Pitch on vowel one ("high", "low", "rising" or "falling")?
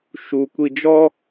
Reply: low